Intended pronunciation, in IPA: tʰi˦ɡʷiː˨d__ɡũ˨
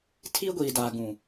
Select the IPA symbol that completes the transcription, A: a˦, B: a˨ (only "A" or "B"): B